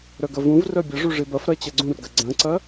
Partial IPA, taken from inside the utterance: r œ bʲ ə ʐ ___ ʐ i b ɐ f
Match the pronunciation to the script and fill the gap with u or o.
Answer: u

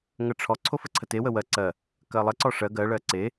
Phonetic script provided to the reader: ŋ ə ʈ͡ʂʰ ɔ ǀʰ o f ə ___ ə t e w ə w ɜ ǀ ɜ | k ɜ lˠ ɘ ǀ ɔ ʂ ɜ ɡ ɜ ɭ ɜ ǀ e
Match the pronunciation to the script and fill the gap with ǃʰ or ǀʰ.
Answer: ǀʰ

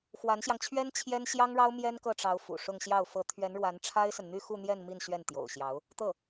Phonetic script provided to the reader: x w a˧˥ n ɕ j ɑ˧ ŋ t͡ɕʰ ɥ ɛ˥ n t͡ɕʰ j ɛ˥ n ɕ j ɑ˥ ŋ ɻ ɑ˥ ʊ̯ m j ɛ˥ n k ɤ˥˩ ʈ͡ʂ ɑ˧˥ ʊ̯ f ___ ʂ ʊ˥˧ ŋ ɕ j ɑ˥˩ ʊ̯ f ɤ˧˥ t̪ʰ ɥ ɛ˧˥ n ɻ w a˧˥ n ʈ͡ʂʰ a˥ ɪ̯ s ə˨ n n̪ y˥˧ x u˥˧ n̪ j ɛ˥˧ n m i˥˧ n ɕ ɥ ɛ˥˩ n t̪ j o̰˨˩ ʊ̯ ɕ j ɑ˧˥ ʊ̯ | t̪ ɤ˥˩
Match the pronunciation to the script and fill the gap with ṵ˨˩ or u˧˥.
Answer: ṵ˨˩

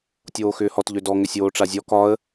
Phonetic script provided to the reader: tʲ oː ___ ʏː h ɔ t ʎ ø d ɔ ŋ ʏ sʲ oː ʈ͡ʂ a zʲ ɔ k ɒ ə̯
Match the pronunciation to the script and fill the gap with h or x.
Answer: x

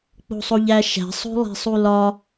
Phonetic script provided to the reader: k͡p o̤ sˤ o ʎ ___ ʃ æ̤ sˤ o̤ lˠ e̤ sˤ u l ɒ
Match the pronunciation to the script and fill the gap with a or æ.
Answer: æ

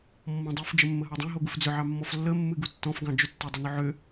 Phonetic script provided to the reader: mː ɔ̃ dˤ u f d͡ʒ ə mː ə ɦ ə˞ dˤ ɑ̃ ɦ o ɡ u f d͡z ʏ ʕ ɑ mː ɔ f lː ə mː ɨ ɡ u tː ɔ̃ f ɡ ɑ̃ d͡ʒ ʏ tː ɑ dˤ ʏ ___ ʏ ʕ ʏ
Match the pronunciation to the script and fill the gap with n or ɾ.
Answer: n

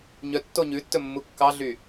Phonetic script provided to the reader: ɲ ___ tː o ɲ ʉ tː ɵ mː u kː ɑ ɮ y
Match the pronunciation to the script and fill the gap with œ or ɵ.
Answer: œ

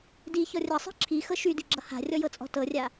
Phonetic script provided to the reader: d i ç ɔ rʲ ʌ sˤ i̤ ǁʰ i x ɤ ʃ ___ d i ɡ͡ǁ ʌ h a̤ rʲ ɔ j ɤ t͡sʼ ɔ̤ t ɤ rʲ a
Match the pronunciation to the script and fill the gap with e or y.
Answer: y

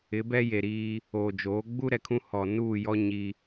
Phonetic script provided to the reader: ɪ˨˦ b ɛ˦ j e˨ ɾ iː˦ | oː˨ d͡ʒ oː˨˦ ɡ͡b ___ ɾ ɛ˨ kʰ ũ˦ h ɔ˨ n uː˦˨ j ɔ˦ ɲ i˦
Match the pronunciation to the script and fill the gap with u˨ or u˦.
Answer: u˦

